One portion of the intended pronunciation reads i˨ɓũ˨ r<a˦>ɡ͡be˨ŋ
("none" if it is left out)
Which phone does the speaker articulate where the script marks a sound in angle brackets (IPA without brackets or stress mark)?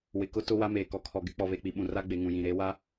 a˦